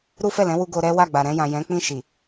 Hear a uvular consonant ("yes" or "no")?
no